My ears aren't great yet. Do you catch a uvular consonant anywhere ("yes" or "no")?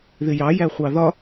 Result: yes